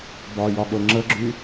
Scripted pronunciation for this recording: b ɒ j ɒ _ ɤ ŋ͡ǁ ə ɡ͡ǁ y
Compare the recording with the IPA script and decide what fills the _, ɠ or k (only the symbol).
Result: ɠ